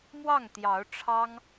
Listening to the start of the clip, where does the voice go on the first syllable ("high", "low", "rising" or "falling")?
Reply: falling